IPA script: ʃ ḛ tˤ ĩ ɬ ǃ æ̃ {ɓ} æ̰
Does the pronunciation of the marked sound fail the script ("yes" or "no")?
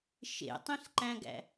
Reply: yes